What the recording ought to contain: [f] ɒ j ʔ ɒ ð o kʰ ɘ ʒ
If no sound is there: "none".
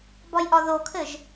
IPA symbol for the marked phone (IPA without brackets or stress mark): b